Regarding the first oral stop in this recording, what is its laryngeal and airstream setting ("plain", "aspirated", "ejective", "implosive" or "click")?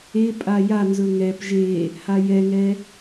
ejective